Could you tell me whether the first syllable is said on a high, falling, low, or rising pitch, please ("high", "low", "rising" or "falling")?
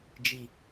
low